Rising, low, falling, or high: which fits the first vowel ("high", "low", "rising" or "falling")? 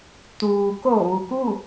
low